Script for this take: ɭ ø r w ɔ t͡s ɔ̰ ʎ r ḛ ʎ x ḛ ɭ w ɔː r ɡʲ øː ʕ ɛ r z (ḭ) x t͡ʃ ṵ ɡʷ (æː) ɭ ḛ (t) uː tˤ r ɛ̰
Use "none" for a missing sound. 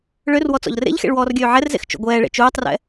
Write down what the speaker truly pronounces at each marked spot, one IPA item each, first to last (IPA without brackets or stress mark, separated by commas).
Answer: ḛ, ɛː, t͡ʃ